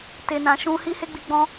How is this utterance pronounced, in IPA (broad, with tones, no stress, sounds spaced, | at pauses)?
t e˧ n ã˧ ʃ ũ˦ h i˦ h e˦ ɡ͡b i˧ ɡ͡b ɔ̃˧